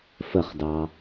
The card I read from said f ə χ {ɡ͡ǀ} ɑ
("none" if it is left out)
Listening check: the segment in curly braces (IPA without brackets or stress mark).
d